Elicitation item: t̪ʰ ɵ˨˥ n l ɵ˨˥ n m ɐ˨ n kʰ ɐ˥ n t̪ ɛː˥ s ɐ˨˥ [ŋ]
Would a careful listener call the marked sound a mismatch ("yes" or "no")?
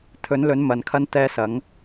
no